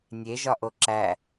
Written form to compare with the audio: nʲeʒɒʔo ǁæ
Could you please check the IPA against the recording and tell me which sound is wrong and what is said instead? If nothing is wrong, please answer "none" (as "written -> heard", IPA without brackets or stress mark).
none